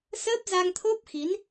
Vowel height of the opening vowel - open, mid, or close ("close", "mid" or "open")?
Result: mid